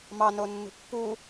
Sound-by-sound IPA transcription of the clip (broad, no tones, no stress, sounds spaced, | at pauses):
m ɑ n o nː ṳ pː u